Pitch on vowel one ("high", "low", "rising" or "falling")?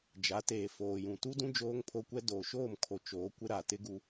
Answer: rising